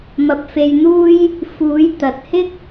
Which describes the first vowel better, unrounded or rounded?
unrounded